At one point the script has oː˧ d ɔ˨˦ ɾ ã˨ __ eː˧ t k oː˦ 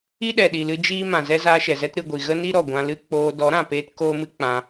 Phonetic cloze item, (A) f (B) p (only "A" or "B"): B